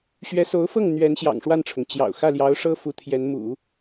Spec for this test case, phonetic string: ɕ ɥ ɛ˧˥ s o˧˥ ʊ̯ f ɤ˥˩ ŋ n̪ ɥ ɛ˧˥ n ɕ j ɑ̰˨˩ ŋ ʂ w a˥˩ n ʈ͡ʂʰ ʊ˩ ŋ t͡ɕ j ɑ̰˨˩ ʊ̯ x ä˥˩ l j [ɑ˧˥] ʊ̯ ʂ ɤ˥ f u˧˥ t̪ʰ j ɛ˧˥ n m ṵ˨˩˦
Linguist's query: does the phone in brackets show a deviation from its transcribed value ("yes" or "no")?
no